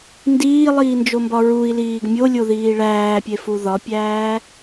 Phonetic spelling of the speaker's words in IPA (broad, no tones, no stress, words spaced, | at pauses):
ndiːlˠiːnd͡ʒombɒ ɹui̯liːɡ mʲolʲoðiː ɭæːpʲefu ðɒpʲæː